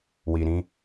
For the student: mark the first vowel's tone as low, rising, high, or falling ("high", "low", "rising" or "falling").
low